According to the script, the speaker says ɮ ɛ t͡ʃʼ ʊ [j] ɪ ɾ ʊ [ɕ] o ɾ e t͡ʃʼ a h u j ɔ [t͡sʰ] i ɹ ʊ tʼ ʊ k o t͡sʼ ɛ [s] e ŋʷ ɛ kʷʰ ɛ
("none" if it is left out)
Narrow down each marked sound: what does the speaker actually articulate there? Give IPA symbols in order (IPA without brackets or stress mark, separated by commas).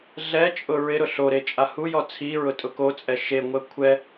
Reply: ɹ, ɬ, t͡sʰ, ʃ